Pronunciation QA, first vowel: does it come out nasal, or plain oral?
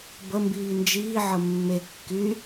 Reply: oral